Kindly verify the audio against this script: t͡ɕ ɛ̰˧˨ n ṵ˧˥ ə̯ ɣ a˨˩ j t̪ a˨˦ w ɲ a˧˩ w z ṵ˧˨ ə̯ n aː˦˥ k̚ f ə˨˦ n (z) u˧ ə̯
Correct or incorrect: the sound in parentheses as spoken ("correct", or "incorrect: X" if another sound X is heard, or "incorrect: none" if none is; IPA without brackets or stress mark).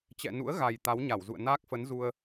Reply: correct